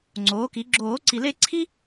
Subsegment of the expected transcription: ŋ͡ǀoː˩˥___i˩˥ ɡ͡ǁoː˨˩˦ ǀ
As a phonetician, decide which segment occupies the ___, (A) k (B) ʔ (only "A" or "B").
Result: A